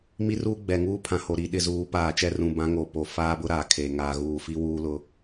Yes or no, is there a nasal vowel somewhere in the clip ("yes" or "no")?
yes